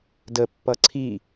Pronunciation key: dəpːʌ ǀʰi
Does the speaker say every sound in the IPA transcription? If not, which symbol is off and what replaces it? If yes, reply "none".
none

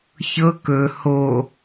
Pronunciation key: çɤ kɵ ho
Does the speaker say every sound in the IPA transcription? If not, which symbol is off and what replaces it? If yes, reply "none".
none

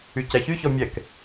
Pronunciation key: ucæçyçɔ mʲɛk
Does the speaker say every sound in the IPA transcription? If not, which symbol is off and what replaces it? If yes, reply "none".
u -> y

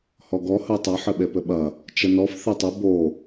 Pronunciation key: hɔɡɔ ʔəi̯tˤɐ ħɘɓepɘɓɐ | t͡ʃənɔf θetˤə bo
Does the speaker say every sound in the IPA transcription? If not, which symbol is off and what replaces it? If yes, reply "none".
ʔ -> h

